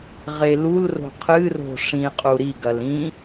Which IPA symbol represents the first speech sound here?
ʁ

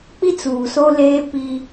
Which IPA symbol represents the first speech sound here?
k͡p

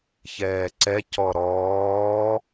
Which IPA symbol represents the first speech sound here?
ç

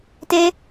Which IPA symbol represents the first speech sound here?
t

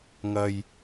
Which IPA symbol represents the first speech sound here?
ŋ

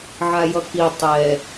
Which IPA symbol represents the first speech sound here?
ʕ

